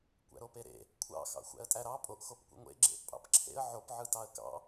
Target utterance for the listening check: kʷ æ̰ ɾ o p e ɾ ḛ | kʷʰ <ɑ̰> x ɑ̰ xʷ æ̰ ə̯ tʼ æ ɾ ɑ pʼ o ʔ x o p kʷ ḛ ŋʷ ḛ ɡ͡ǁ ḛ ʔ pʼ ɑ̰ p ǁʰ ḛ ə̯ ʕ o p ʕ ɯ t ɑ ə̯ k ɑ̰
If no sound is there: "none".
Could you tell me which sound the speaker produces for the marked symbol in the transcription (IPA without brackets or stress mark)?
ɑ̰